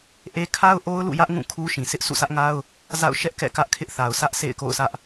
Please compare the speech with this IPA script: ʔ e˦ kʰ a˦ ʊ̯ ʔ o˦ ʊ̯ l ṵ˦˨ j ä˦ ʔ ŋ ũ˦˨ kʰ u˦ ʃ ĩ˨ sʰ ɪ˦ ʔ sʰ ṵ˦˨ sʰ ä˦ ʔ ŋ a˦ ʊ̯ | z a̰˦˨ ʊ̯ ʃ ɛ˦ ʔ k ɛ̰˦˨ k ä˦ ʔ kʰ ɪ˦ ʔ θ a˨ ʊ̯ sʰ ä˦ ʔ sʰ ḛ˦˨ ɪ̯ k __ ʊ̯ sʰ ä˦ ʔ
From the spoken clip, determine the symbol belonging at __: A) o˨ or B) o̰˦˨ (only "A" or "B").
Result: B